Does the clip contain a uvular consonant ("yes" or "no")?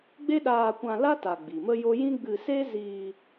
no